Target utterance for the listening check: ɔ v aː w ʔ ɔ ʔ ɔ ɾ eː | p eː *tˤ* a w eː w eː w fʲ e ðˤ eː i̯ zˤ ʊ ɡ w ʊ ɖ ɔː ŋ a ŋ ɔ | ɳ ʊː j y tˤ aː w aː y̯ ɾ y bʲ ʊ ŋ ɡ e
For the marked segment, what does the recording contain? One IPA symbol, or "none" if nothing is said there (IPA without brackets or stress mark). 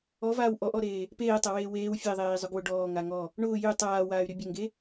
tˤ